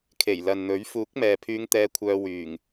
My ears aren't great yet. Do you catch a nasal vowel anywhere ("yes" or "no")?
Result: no